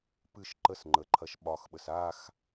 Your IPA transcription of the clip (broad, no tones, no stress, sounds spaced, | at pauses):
p ɨ ʃ ǃ ə s ŋ͡ǃ ə ǃʰ ɐ ʃ ɓ ɒ x ɓ ə s a x